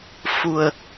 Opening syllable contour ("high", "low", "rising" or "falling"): low